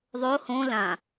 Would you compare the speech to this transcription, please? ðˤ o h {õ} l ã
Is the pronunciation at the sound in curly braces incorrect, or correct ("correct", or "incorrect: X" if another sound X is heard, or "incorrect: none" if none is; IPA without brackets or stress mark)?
correct